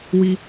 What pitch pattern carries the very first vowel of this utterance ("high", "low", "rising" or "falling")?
low